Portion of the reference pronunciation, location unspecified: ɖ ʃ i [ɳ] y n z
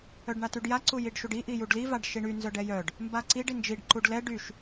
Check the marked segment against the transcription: correct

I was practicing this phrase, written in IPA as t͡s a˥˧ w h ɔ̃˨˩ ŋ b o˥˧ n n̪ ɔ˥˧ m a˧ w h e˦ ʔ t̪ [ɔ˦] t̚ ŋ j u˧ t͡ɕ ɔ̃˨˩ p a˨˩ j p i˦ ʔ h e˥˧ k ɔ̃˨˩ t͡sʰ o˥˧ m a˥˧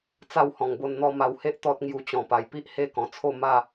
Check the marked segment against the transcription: correct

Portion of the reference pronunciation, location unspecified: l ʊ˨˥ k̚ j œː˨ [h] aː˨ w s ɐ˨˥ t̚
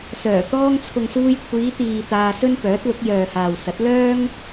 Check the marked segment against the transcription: correct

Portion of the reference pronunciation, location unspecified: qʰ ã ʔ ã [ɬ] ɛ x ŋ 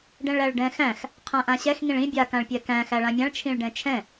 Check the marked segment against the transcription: incorrect: ɕ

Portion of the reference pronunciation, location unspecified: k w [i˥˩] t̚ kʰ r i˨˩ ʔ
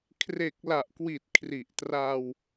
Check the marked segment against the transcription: incorrect: i˨˩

